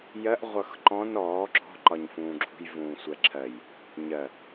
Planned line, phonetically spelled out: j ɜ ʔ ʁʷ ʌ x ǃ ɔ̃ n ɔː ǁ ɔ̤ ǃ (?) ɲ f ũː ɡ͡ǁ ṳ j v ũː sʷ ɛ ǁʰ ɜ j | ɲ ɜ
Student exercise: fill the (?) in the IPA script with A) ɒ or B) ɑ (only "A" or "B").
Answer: A